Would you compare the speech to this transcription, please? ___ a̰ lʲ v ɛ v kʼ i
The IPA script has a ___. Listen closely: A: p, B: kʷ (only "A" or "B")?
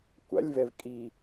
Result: B